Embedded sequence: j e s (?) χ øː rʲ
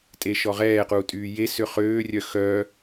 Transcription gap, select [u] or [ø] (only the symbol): ø